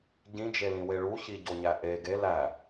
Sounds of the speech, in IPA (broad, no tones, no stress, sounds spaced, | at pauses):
ɟ ĩ d͡ʒ e l ĩ w e ɭ u ç i ɟ o ɲ æ ʔ e ɡ e l æ